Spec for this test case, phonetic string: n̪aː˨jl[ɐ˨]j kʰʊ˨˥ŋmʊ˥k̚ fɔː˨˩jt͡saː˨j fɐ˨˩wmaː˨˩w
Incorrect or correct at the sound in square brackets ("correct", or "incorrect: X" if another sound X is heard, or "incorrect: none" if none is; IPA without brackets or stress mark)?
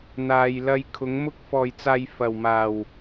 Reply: incorrect: ɐ˧